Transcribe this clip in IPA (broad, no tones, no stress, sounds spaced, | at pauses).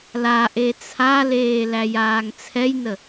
l a ʔ e t͡sʰ a l eː l æ j aː ŋ t͡sʰ ɛ j n ə